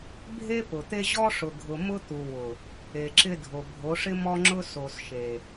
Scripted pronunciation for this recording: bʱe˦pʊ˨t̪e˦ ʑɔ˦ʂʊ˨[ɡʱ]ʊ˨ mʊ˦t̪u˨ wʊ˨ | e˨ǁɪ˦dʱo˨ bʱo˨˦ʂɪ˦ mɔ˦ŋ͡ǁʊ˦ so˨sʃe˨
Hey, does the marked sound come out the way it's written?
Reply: yes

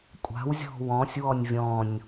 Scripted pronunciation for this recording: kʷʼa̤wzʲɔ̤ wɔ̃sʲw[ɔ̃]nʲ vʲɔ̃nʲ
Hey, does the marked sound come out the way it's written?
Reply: no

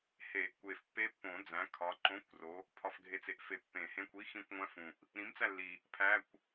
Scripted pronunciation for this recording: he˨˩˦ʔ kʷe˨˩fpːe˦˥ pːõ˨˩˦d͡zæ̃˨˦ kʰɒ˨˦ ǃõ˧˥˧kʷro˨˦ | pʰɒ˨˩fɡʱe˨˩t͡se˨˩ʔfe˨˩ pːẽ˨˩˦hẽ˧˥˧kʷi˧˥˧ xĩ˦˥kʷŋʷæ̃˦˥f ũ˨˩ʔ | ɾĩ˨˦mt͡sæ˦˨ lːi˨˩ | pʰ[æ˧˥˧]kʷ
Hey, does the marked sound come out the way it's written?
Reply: yes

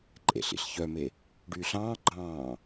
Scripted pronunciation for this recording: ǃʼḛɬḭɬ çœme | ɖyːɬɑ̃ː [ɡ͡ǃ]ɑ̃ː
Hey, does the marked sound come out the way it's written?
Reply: yes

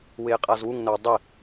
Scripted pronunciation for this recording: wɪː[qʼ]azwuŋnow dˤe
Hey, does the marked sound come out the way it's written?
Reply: yes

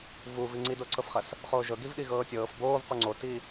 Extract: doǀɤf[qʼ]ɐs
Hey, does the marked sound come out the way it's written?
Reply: no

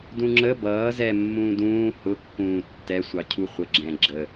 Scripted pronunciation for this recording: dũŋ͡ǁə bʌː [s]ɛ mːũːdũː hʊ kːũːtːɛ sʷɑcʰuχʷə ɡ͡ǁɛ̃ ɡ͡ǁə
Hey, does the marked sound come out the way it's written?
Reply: no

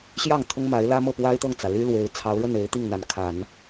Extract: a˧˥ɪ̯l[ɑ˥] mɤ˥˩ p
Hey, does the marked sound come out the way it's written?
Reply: no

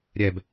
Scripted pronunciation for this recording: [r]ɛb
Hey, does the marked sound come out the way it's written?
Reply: no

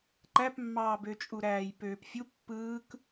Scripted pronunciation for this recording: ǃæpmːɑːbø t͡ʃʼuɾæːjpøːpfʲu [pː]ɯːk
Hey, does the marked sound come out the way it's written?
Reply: yes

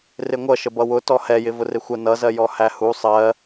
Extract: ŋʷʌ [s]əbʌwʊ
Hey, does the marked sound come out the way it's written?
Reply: no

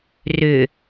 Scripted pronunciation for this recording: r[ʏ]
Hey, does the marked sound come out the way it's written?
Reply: yes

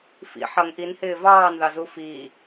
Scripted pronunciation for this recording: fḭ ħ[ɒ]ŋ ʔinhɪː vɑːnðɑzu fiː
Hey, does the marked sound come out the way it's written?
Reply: no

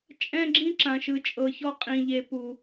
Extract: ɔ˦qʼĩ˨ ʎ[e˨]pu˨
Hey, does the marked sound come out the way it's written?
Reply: yes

